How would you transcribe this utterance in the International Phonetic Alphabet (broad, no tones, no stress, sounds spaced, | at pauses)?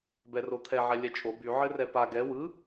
b ɛ r o t̪ʰ ɛ ʕ ɛ lʲ ɛ t͡ʃʼ o b y ʕ ɘ r ɛ p a ɡ ɛ w ɯ